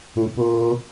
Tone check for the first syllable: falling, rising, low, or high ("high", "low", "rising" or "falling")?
low